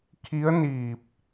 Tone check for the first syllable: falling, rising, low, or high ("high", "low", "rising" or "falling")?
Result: rising